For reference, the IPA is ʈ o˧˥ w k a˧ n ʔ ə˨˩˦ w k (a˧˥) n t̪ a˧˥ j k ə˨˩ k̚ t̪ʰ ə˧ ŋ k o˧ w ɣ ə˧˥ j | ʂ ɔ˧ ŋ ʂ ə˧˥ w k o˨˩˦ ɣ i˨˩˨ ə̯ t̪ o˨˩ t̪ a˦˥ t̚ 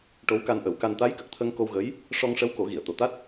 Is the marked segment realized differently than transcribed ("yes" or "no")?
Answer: yes